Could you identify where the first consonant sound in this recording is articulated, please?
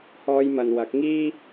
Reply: glottal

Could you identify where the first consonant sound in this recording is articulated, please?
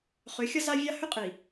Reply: uvular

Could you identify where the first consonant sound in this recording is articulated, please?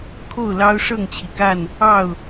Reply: velar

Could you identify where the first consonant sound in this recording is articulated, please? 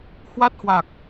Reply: glottal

